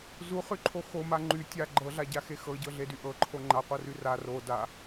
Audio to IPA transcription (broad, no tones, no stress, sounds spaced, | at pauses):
z u χ y ǃʰ o x o m a ŋ͡ǃ y tʲ a ɡ͡ǃ ɤ ɮ a ɟ a x e x ɤ ɟ ɤ ɮ e d y ʔ ɤ ǃʰ o ŋ͡ǃ a qʷ ɤ r y r a r o d a